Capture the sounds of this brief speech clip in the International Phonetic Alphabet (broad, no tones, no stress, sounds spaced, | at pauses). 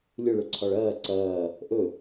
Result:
lʲ ɵ ɭ ɵ ǀʰ ɒ ɭ ɐː ǀ ɐː | ʔ ɵ